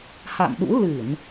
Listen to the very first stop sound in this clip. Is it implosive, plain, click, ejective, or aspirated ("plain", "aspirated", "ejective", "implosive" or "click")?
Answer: implosive